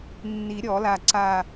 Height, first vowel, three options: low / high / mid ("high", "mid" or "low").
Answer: high